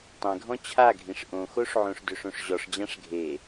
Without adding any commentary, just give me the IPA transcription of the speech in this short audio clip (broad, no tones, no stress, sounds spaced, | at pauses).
tˤ ẽ ɡʱ ɔ̃ t͡ɕʰ a ɡʱ ĩ ʂ ʔ õ x o ʂ ʕ õ ʂ d ø ʂ õ ʂ ʑ ɔ ʂ d͡ʑ ã ʂ ɡʱ e